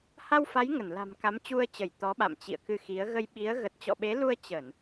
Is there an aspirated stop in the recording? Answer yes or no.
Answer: no